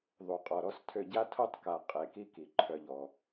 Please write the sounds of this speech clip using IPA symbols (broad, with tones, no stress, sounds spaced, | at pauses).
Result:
ðˤ u˨ qʼ ɔ˨ ɾ ɔ˦ s tʰ ø˦˨ ɟ a˦ tʰ o˦ tˤ k a˨ qʼ e˨ k i˦ k i˨ ǃʰ œ˦ ʎ ɔ˦